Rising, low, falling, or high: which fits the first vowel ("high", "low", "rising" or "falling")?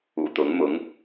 low